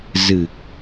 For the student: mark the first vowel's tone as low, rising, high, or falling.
low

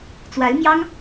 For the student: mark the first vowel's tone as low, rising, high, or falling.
rising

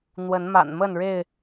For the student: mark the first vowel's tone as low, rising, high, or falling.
rising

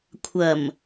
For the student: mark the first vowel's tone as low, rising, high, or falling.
low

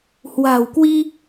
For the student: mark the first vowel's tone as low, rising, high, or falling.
low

